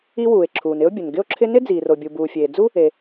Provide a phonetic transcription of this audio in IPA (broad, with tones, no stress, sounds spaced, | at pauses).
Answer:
i˥ w uː˩ e̯ ǁʰ uː˩ n ɪ˥ o̯ bʲ ʊ˩ n ɡ ɪ˥ o̯ ǁʰ ɪ˥ n ɪ˥ d͡z iː˩ r o˩ bʲ u˩ b uː˩ fʲ eː˩ d͡z u˥ | e˩